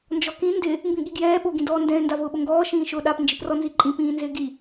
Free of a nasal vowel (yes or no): no